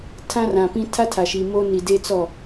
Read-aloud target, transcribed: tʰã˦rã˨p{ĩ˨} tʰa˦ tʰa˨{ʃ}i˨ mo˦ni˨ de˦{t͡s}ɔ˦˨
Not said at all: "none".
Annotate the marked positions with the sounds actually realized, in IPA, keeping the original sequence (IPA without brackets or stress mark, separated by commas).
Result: ĩ˦, ʃ, t͡s